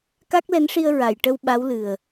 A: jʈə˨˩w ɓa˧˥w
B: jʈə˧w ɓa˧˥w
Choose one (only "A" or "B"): B